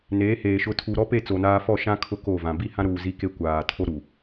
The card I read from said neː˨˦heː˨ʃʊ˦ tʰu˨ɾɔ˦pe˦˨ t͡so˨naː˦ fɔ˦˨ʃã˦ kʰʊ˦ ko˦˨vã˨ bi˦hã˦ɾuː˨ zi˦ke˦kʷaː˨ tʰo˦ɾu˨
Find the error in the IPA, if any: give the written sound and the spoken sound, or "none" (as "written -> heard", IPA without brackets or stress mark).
none